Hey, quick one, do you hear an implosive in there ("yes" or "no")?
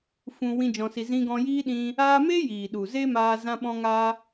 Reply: yes